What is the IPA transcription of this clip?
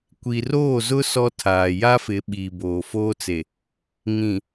kʷ i˨ r oː˦˨ z ʊ˦ s ɔ˦ tʰ aː˨ j a˦ f ɪ˨˦ ɓ iː˨ b oː˨ f oː˦ t͡s e˨ | ŋ ĩ˨

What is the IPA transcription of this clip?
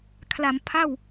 kʰ l a˩˦ m pʰ a˥˩ w

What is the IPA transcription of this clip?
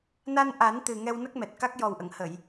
n a˧ n ʔ a˨˩˦ n t̪ ɨ˨˩ ŋ ɛ˧ w n ə˦˥ k̚ m ɛ˨˩ t̚ k a˦˥ k̚ j ɔ˨˩ w ʔ ə˨˩˨ ŋ h ə˨˩˨ j

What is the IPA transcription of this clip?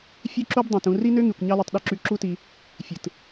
fʲ u˦ ǁ o˦ b dˤ ĩ˨ t ũ˧ r i˦ n ø˦ ŋ y˨ kʷ ɲ ɑ˦ l e˧ tˤ ɗ o˦ ǁ y˧ ǁ u˦ t i˧ | fʲ ɯ˨ t

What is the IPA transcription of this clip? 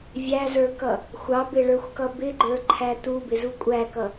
vʲ æ z ə˞ k ʌ | xʷ ɑ b ɪ ɭ ə˞ xʷ k ʌ b ɪ ɡ͡ǃ ə˞ ǃʰ æ t̪ u b ɪ z u kʷʼ æ k ʌ

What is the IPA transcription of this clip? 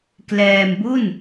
k l ɛː˧ m b u˥˩ n

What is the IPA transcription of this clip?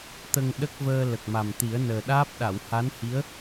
t̪ ə˧ ŋ ɗ ə˦˥ k̚ v əː˧ l ə˨˩ k̚ m a˨˩ m t̪ i˨˩˦ ə̯ n əː˨˩ ɗ aː˦˥ p̚ ɗ a˨˩˨ w h a˧˥ n h i˧˥ ə̯

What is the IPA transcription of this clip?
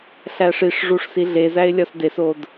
ɬ æ ʂ i ʂ ʐ u ʂ s i ɮ e z æ ɪ̯ lʲ ɒ s d e s o d

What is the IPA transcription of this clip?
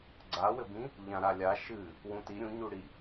ɡ͡ǀ a w ɘ b ĩ | ʎ ã ɾ a lʲ a ʃ ɨ | w ũ t i ɾʲ ũ ɲ u ɽ i

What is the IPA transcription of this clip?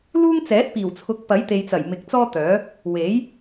l uː˥ ŋ t͡s ɛː˨˥ t̚ p iː˨˩ w t͡sʰ ʊ˨˥ k̚ p ɐ˨˥ j t̪ e˨ j t͡s ɐ˨˩ j m ɪ˨˥ k̚ t͡s ɔː˥ t̪ œː˨˥ | w e˨˥ j

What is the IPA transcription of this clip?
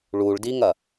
ɭ u ɭ d i ŋ ɐ

